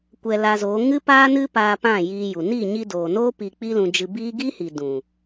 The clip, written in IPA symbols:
kʷɛ˧la˧zoː˨˦ ŋɨ˦paː˦nɨ˦paː˧ pã˦˨jiː˧ju˨ ni˦˨ɲi˧ doː˨noː˦ pi˧k͡pi˦lũ˧ d͡ʒɨ˧biː˦ ɡiː˦hi˨ dũ˨

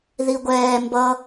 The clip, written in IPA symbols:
ðiɡʷɛː mbʌ

